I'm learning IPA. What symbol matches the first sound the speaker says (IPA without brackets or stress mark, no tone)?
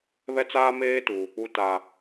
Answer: β